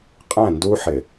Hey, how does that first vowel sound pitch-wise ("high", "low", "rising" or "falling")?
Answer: falling